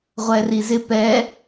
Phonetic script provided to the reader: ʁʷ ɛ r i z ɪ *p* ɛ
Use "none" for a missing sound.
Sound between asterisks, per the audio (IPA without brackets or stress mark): p